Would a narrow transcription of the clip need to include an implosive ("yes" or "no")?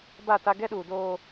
yes